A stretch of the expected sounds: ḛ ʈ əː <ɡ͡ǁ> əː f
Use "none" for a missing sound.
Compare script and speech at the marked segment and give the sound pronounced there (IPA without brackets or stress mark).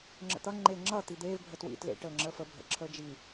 ŋ͡ǁ